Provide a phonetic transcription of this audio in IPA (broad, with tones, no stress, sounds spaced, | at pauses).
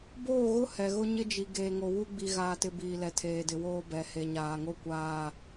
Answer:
b oː˦˨ ɣ ʊ˦ h ɛ˨ ɣ ʊ˦ ɲ ɪ˦ d͡ʒ i˨ ɡ eː˨ ŋ o˨ w u˦ ɡ͡b i˨ ɣ aː˨ t ɪ˨ b iː˨ l ɛ˨ tʰ eː˨ d ɪ˨ w oː˦ b ɛ˨ h e˨ ɲ aː˨ ŋ o˦˨ kʷ aː˨